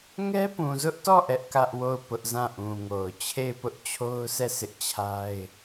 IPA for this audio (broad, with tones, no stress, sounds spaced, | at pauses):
ŋ ɛ˦ p ũ˨ z ʊ˦ ʔ t ɔ˦˨ ʔ ɛ˦ ʔ k ä˦ ʔ w o˦˨ ʊ̯ p ʊ˦ ʔ z ã˦˨ ʔ ũ˨ ŋ o˨ ʊ̯ t͡ɕʰ e˦˨ ɪ̯ p ʊ˦ ʔ t͡ɕʰ o˦ ʊ̯ s ɛ˦˨ s ɪ˦ ʔ t͡ɕʰ a˦ ɪ̯